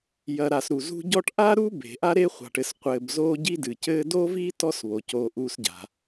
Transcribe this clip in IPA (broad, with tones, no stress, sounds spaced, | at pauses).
j ɐ˨ ɾ a˨ s ɾ u˩ z ṳ˦ ɟ ɔ˦ ʈ ʔ a˥ ɾ u˥ b e̤˩ ʔ a˦ ɾ e˥ χʷ a̤˨ ʈ ɘ˨ s qʷ ɘː˨ b z oː˦ ɟ i˦ d ɨ˩ c ɘː˦ d o˥ v iː˥ t ɔ˥ s β o˩ c oː˨ ʔ u˨ s ɟ a̤˩